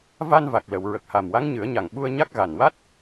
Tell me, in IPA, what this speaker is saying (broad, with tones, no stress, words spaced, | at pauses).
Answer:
va˧nva˨˩k̚ lə˨˩˨wɹə˨˩k̚ ha˨˩mwa˧˥ŋɲɨ˨˩˦ə̯ɲa˨˩ŋ ɓu˧ə̯ɲa˦˥k̚ ɣa˨˩nwa˦˥t̚